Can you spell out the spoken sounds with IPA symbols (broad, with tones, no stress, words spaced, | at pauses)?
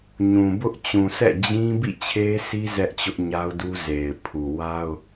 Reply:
ɲũ˨ bʊ˦ʔt͡ɕũ˨sʰɛ̰˦˨ d͡ʑĩ˦ bḭ˦˨ t͡ɕʰe˦si˦ zɛ˦ʔt͡ɕʊ˦ʔɲa˦ʊ̯du˦ ze˨ɪ̯pʰu˨wa˦ʊ̯